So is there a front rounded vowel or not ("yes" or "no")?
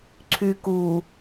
yes